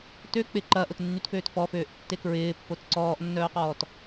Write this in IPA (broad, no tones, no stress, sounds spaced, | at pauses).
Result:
t ø k͡p ɪ ǃ ɐ ʔ ʊ t nː y t f øː t f ɔ f øː ʔ tː e k ɹ ɪː pː o t ǀ ɔː ʔ nː œː q ɔː t